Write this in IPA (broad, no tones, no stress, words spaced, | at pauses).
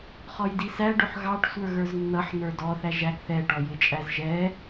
χɔjdisæ ɖʊħɣɑʈ sʷə˞ɣə˞znːʌħ nə˞dɔ θæʒæɡ θɛ ʈɔjɪt͡ʃʼæzʒɛ